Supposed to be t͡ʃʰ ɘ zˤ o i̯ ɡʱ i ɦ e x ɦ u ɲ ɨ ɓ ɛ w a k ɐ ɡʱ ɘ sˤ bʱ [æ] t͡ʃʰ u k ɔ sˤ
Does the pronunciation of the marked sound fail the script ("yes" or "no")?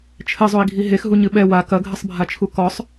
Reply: yes